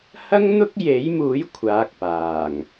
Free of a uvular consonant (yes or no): yes